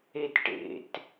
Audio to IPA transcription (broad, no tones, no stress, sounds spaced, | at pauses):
e t ʈ ḛ t